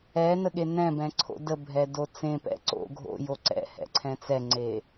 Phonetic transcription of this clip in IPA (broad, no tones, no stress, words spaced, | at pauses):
ɛnəɠe nɛ̃bɛ̃ǀʰo̰ dəbʱɛdo t͡sẽpɛ̰ ǀo̰ ɡʱo̰jo ǀɛ̰hɛ̰ǀʰɛ̃ t͡sɛŋ͡ǀe